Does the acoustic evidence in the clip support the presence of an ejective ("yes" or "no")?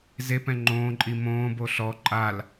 yes